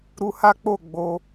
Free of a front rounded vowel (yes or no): yes